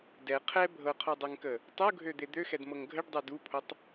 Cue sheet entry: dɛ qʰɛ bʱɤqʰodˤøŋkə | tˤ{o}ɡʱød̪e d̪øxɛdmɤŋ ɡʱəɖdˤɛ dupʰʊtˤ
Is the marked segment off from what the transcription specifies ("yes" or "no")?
yes